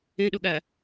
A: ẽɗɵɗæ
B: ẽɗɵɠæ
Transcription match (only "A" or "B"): B